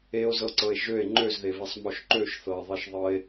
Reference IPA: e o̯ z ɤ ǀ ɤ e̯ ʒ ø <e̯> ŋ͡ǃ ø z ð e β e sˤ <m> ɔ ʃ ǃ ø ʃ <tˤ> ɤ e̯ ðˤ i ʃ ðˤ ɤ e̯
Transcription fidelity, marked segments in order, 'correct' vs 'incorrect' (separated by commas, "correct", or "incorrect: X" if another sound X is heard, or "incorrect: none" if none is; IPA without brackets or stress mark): correct, correct, incorrect: θ